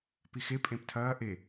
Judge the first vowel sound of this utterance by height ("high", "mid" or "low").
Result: high